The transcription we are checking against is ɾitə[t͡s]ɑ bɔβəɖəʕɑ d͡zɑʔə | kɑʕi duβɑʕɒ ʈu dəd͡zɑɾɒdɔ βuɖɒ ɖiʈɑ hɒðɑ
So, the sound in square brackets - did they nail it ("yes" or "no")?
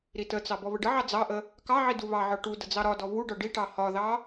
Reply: yes